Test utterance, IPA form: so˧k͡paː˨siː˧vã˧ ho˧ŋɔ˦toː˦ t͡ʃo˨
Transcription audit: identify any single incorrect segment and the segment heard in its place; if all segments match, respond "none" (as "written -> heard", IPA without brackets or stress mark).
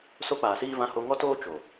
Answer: none